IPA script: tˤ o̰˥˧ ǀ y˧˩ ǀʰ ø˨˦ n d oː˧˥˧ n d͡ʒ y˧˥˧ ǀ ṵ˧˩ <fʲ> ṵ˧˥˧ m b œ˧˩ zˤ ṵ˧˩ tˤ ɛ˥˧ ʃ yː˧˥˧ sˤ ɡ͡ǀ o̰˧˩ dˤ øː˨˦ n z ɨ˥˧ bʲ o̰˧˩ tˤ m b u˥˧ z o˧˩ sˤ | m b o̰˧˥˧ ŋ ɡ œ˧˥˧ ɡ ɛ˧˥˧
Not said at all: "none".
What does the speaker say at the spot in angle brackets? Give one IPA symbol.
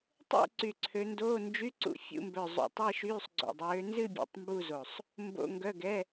fʲ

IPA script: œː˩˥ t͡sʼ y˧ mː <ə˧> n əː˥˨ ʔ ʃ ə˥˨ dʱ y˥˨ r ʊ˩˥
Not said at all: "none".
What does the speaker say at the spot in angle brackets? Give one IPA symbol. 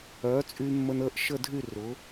ə˧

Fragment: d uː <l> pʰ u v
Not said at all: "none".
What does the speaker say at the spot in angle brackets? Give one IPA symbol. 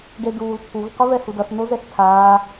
l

